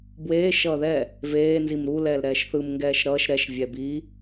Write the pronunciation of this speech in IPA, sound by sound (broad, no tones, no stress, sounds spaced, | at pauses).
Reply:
b w eː ʃ ʌː ð ɛ | v eː n z i m ɾ u l ɛː l ɾ ɛː ʃ θ ɯ m ŋ ɡ ɛː ʃ ɾ ʌː ʃ ɾ ɛ ʃ vʲ ɛ b i